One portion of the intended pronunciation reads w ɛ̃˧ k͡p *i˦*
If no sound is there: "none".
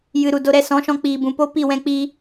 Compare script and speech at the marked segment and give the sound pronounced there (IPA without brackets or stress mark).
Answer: i˦